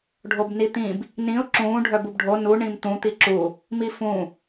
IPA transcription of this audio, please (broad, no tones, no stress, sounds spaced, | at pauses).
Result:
ɖʱ o b n i t̪ ĩ b | n ĩ ʊ̯ ǁ ũː ɖʱ œ b u b ɖʱ o n u ɳ ĩ m t̪ ũ t̪ i ǁ u | m i f ũ